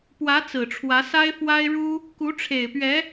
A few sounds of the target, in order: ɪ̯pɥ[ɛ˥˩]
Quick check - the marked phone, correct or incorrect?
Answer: incorrect